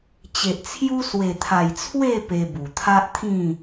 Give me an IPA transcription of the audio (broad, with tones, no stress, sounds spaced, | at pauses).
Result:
t͡ɕ e˨ ʔ t͡sʰ j u˦ s w e˨˩ t̪ʰ a˨˩ j t͡sʰ w e˥˧ p e˧ b u˨˩ t̪ʰ a˦ ʔ t̪ʰ ĩ˥˧